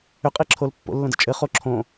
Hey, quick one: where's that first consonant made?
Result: uvula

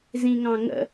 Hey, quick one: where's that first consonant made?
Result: tongue tip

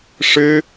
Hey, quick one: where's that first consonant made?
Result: retroflex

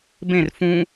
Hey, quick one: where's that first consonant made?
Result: lips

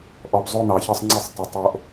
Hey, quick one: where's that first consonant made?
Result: throat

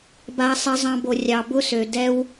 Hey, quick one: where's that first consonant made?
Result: lips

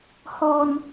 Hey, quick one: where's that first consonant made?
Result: throat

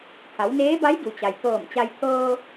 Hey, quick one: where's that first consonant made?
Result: throat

